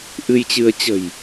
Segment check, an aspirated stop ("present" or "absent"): absent